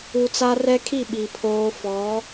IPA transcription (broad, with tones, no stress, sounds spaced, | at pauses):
u˨ t͡s a˦ r ɛ˦ kʰ i˦˨ ɓ i˨ pʰ oː˦ f ɔ˨˦